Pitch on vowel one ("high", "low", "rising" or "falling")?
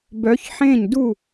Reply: rising